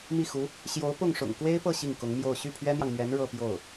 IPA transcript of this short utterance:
m i˥˩ x u˧˥ | ɕ j o˧˥ ʊ̯ p ʊ˥˩ ŋ ʂ ʊ̰˨˩ ŋ k w e˥ ɪ̯ p ɤ˥˧ ɕ i˥˩ ŋ k ʊ˧˥ ŋ m j o˥˧ ʊ̯ ɕ y˥˩ pʰ ɥ ɛ˥ n̪ j ɑ˨ ŋ m ɥ ɛ˧˥ n ɻ ɤ˥˧ p j o˥˩ ʊ̯

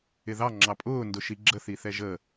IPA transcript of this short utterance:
ɪ ð ɑ ŋ͡ǁ ɑ pʼ ʊː n d ʊ ʃ i ɡ͡ǁ ə θ i θ ɛ ʒ ə

